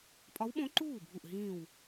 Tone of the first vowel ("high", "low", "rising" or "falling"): rising